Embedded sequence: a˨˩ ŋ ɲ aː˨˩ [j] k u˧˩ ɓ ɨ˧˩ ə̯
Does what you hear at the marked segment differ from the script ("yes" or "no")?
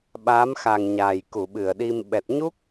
no